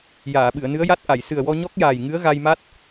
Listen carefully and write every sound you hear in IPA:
j aː˨˩˨ ɓ ɨ˨˩˨ ə̯ n ɨ˧˥ ə̯ j a˦˥ t̚ ʔ a˨˩˨ j s ɨ˨˩ ə̯ w ɔ˧ ɲ ɔ˦˥ k̚ j aː˨˩ j ŋ ɨ˧˥ ə̯ ɣ a˧ j m a˦˥ t̚

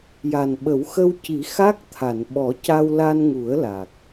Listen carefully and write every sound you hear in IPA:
j a˨˩ n ɓ ə˨˩˦ w x ə˧ w c i˨˩˦ x a˦˥ k̚ t̪ʰ a˨˩˨ n ɓ ɔ˨˩˦ c a˧ w l a˧ n ŋ u˨˩˦ ə̯ l a˨˩ k̚

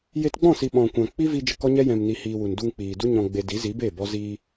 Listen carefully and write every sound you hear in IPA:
j e˧ t ɡ͡b ɔ̃˦˨ s i˨ ɓ ɔ̃˨ kʷ ã˨ k͡p i˦ v i˧ d͡ʒ ə˧ k ɔ˦ ɲ ɛ˦ j ɛ̃˨ m n i˨ h iː˨ w u˨ n d u˧ ŋ k͡p iː˨ d u˦ ɲ ɔ̃˨ ɡ͡b e˨ d i˨˦ z i˨˦ b e˦˨ b ɔ˦ z iː˧

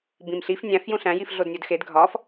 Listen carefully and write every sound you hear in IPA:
b ĩ m ɬ i f nʲ æ̃ f j ũ ɬ æ̃ j i f ɮ o d nʲ o d x e d ɡʱ ɒ f

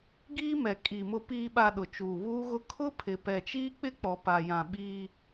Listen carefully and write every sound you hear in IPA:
ɡ iː˦ m ɛ˨ kʼ i˨ m ʊ˨ p iː˨ ɓ a˨ ɗ ʊ˨ t͡ʃ uː˨ β uː˦ ɣ ʊ˦ kʰ ʊ˦ pʰ ɪ˨ p ɛ˨ t͡ʃ iː˦ k͡p ɪ˦ k͡p ɔ˨ p a˨ j ã˨ ɓ iː˦

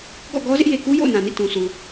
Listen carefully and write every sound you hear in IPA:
ɡ ɔ̰˦˨ ɡ ɔ˦ z ɪ˦ ʔ j e˨ k u˦ j o̰˦˨ ʊ̯ n ã˨ n ḭ˦˨ t ũ˨ sʰ u˨

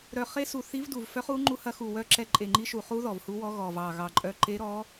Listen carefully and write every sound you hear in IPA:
ɾ œ˨˩ χ e˧˥ s u˨˩ θ i˧˥ v d u˨˩ v f œ˧˥ χ u˧˥ ŋ͡ǃ u˧˥ h ɐ˧˥ x u˨˩ w œ˧˥ ǁ ɛ˧˥ ǃʼ e˨˩ ŋ͡ǃ i˧˥ ʃ u˨˩ χ u˧˥ ð ɔ˨˩ v h u˧˥ w ɔ˧˥ ɣ ɔ˨˩ v ɑ˨˩ ɣ ɑ˨˩ ǃʼ œ˧˥ ǃ e˧˥ ɾ ɔ˧˥

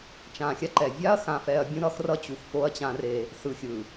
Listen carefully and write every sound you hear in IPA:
t͡ʃ ã˨ xʲ a˦ ǃ ɛ˨ vʲ a˦ ɐ̯ x ã˨ f ɛ˨ ɐ̯ bʲ ũ˦ ɾ ʌ˦ x r ʌ˦ t͡ɕ u˨ x f o˦ ɐ̯ t͡ɕ ã˦ r e˦ | s ɯ˨ xʲ ɯ˨

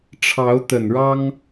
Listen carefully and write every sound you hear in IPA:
ʈ͡ʂʰ ɑ˧˥ ʊ̯ t̪ ə˨˩ n ɻ ɑ˥ ŋ

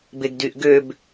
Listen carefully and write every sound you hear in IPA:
b e ɡ d y ʔ ɡ ø b

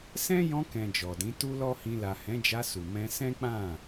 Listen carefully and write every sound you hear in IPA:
s ɛ̃˦ j ɔ̃˧ k ɛ̃˨ d͡ʒ ɔ˨ d ĩ˨˦ t u˦ l ɔ˦ h ĩ˧ l a˨ h ɛ̃˨˦ d͡ʒ a˧ s u˨ m ɛ̃˧ s ɛ̃˦ k͡p ã˦˨

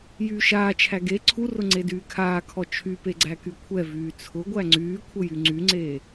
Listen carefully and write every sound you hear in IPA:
j yː ʃ aː t͡ʃʰ æ ɡ e ǀʰ u r ʊ ŋ͡ǀ e d yː kʰ aː kʰ ɔ t͡ʃʰ y p e ɡ͡ǀ æ k y kʷʰ ɛ v yː t͡sʰ ʊ ɡʷ æ ŋ͡ǀ yː kʷʰ ə j y ŋ͡ǀ y ŋ͡ǀ eː

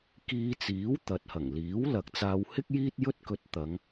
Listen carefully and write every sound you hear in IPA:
k iː˧ t͡s iː˨˥ w t̪ ɐ˨ t̚ h ɐ˨˩ ŋ l iː˨˥ w l ɐ˨ k̚ t͡s aː˧ w h ɪ˥ k̚ j iː˥ t̚ j ɵ˥ t̚ k ɵ˧ t̚ t̪ ɐ˨˧ ŋ

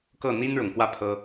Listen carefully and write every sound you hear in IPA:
k ɤ˥˩ n̪ i˥ n ɻ ʊ˨˩ ŋ k w ä˥˩ pʰ ɤ˥

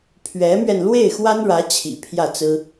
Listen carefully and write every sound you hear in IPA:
pʰ ɥ ɛ˧˥ m ɥ ɛ˧ n l w e˥˩ ɪ̯ x w a˥ n ɻ ä˧˥ t͡ɕʰ ḭ˨˩ pʰ j ä˥˩ t͡s ɹ̩˥

